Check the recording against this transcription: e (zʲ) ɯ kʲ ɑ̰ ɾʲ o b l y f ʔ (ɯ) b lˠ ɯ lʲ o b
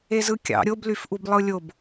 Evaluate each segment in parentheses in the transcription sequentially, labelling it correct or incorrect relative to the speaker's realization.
incorrect: z, incorrect: u

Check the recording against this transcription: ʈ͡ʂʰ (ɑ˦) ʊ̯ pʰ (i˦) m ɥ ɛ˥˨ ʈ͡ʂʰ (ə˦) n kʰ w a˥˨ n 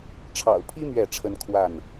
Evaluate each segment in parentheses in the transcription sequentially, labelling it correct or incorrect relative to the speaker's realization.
incorrect: ɑ̰˨˩, correct, correct

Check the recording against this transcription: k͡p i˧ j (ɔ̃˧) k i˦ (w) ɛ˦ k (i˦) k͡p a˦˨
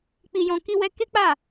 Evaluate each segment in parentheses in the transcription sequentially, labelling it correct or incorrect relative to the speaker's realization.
correct, correct, incorrect: e˦

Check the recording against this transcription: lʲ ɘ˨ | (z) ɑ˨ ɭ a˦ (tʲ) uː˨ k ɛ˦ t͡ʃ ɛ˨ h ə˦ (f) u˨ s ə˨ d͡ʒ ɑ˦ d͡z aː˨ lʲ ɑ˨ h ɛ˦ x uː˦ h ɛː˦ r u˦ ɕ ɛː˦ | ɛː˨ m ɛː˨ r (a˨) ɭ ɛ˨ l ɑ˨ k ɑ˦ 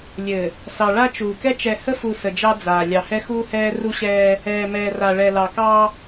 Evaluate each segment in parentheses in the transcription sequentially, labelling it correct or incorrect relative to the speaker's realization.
incorrect: s, incorrect: t͡ʃ, correct, correct

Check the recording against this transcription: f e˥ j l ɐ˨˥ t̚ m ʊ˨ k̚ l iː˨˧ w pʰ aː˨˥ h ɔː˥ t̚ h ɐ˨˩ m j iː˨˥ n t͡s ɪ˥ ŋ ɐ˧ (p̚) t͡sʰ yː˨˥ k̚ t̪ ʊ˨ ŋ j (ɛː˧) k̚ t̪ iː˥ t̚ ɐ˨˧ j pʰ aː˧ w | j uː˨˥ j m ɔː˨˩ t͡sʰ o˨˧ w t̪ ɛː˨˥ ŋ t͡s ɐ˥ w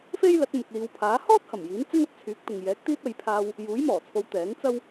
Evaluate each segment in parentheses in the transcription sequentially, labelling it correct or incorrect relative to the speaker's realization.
incorrect: t̚, incorrect: ɛː˨˥

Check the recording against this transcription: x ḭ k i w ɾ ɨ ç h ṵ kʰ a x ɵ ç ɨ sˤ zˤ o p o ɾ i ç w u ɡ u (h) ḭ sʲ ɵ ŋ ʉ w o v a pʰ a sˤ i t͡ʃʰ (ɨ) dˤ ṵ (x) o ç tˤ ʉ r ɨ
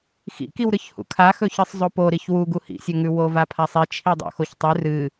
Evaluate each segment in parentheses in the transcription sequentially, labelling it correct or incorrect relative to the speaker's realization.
correct, incorrect: i, correct

